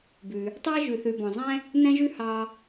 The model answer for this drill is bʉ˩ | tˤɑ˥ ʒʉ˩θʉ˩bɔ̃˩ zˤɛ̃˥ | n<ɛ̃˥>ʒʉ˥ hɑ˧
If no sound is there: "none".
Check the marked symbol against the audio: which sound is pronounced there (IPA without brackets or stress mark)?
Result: ɛ̃˥